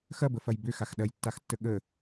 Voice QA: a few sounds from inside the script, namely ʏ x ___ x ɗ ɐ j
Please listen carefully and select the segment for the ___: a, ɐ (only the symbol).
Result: a